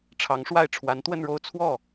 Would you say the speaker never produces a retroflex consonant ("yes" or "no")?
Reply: no